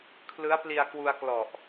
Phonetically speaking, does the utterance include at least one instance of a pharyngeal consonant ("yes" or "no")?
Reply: no